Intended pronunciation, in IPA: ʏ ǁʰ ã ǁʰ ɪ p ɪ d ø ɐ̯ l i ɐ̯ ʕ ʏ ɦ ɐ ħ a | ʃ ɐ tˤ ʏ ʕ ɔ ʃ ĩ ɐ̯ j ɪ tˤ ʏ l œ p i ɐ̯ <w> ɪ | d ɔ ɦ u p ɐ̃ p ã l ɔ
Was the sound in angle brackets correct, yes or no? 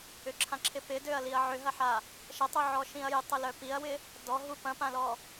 yes